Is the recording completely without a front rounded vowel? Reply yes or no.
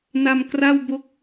yes